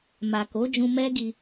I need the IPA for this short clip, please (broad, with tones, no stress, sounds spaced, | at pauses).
m a˨ k o˨˦ d͡ʒ ũ˧ m ɛ˦ ɡ i˧